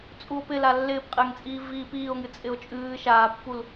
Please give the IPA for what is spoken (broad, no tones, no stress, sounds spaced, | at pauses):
t͡sʼ u o̯ p ɪ l a lː ɪː p qʼ ɪː ŋ t͡sʼ iː v iː p iː o̯ ŋ ɨ t͡sʼ ɪ o̯ t͡ʃʼ ɨː ʃ aː pː u l